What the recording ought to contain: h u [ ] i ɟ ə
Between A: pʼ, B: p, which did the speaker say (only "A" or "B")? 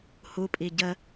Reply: A